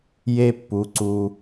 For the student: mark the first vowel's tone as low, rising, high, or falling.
high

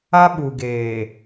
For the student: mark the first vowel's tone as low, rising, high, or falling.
high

